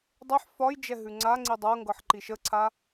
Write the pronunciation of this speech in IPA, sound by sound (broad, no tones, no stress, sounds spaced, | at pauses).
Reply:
dˤ e ħ f ɒ j d͡ʒ ɛ ɦ ʉ ŋ͡ǀ a ŋ͡ǀ i dˤ ɤ ŋ ɡ ɤ ħ ǃ i ʃ ə ǀʰ a